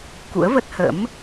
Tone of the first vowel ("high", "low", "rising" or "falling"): rising